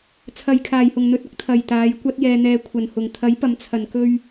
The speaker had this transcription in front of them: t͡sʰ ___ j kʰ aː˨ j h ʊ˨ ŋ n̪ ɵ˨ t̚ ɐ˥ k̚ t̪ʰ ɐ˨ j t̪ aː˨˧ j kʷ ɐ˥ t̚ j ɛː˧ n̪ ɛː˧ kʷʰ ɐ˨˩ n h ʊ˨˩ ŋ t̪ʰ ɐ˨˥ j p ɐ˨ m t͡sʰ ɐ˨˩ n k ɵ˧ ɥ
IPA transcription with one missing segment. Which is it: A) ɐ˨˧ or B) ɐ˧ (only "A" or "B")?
B